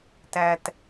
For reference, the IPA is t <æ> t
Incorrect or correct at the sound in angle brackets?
correct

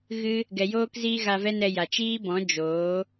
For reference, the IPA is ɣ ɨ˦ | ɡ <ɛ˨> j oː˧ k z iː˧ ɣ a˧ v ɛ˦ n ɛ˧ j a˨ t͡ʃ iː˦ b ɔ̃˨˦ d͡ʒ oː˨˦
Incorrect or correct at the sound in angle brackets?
correct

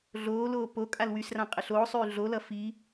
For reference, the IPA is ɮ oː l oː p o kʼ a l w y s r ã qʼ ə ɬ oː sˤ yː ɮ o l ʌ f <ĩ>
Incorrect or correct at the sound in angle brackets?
incorrect: i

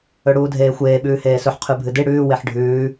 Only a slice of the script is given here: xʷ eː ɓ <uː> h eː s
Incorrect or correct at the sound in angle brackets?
incorrect: ʉː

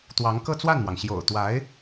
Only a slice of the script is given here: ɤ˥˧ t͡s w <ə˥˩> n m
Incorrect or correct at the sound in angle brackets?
incorrect: a˥˩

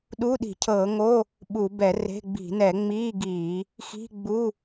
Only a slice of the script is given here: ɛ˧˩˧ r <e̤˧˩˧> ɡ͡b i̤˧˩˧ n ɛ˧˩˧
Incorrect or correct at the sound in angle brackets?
incorrect: e̤˧˥˧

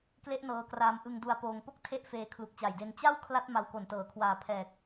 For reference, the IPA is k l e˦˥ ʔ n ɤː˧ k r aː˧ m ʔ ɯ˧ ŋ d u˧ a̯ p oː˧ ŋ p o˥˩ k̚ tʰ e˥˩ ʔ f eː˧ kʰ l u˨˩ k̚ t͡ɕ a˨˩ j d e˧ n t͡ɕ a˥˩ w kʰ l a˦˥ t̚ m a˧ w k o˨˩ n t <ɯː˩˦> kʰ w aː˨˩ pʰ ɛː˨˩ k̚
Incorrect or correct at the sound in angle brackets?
incorrect: ɤː˩˦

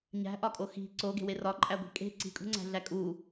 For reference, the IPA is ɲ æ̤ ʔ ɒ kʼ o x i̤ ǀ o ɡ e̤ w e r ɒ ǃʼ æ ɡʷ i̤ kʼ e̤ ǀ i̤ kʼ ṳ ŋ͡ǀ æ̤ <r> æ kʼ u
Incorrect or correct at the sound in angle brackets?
incorrect: ɮ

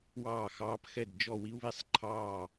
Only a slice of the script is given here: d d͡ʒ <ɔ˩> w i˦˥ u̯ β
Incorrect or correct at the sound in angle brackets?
incorrect: ɔ˥˩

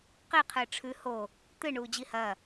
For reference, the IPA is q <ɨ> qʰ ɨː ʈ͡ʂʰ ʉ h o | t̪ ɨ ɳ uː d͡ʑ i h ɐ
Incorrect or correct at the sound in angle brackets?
incorrect: i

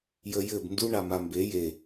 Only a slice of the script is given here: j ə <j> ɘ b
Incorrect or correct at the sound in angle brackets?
correct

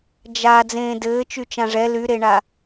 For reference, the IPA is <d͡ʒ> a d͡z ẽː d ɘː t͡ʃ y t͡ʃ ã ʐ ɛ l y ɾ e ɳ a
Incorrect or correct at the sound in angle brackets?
correct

